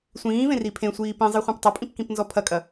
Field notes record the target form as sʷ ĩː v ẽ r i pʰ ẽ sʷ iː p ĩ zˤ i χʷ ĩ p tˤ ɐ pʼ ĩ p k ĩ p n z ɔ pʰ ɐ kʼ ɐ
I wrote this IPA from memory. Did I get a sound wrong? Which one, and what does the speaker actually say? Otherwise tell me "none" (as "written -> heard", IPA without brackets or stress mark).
none